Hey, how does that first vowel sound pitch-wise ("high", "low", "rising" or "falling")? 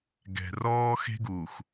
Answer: low